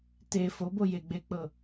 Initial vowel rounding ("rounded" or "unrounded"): unrounded